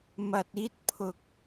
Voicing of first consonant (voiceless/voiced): voiced